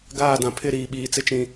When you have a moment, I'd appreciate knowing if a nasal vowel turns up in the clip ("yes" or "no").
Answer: yes